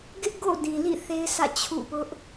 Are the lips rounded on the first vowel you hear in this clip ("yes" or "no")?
no